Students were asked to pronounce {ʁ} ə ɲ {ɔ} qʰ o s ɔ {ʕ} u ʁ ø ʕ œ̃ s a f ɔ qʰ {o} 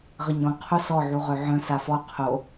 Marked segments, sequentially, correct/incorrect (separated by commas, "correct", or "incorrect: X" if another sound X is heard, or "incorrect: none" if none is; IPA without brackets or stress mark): correct, incorrect: ɔ̃, correct, correct